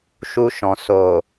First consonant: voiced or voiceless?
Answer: voiceless